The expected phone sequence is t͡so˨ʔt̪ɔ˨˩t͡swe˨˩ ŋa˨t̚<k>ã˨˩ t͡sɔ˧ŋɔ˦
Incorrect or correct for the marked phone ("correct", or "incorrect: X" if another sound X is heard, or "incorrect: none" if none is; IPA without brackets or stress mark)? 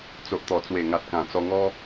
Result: correct